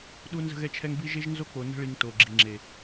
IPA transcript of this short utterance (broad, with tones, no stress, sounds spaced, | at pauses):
ɗ u˦ n z ə̤˦ ɣ ɛ˦ t͡ʃʰ ɛ˦ ŋ b i˦ ʒ e˦ ʒ n z o˦ k͡p o˨ n ə̤˦ ɭ i˨ ŋ t o˨ ɡ͡ǁ i˨ ŋ͡ǁ e˨